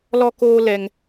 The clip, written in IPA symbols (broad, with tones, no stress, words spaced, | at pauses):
lɔ˦koː˦lɛ˧ŋ